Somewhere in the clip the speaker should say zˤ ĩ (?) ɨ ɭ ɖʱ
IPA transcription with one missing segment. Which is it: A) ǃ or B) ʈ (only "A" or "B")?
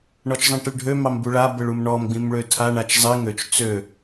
B